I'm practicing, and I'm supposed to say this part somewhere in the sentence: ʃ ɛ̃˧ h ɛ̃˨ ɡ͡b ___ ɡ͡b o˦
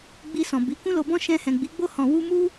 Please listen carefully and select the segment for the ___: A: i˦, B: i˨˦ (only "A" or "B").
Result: B